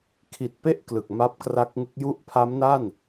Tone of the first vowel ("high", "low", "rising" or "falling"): low